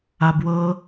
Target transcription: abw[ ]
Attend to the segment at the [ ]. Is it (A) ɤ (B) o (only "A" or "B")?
A